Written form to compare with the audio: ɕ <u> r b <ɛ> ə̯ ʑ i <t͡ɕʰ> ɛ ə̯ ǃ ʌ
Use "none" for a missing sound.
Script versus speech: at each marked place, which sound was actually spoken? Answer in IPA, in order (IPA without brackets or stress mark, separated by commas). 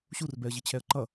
u, ɛ, t͡ɕʰ